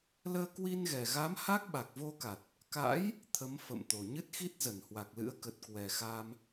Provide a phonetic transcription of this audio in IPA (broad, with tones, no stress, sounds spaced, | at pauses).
l əː˧ k w i˧ n ɣ ɛ˨˩ ɣ a˨˦ m h a˦˥ k̚ ɓ a˨˩ k̚ v o˧ k a˨˩ t̚ | k a̰˧˥ j | t̪ʰ ə˨˦ m f ə̰˧˨ m t̪ o˨˩ ɲ ɨ˦˥ t̚ x i˦˥ t̚ z ə˧˩ n h w a˨˩ k̚ l ɨ̰˧˥ ə̯ k ə˨˩ t̚ k w ɛ˨˩ x aː˧ m